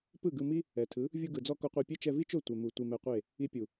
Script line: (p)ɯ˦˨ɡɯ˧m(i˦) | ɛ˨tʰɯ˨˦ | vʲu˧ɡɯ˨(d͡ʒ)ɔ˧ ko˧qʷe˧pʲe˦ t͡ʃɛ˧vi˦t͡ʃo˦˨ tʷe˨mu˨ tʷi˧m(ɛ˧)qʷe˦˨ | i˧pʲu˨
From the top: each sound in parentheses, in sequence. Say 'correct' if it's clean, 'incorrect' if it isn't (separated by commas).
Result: correct, correct, incorrect, correct